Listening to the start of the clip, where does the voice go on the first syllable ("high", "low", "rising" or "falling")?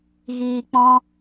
low